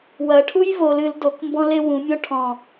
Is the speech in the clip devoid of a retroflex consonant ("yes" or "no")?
no